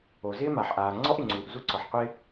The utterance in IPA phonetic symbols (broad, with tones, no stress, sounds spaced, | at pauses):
o˩ z ɪː˥ m a˩ ħ ʔ aː˩ ŋ͡ǀ ɔ˥ ʔ ɪ˩ ŋ͡ǀ uː˩ ʔ z u˥ ǀ ɔ˩ ħ qʷ ɪː˥